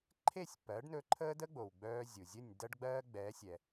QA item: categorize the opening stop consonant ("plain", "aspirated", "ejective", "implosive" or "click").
click